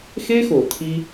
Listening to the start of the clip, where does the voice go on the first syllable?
high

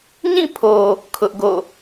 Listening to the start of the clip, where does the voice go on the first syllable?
falling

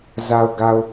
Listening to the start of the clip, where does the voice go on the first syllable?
low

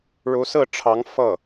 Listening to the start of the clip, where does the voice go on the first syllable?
rising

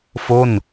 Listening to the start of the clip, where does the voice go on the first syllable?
falling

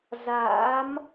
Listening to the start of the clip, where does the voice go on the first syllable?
rising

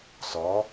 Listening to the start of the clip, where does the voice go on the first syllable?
rising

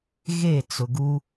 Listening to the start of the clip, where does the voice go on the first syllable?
falling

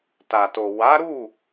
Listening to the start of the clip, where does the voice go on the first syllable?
low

